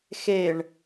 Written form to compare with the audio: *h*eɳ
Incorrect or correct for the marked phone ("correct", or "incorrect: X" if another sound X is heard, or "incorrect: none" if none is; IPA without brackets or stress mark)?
incorrect: x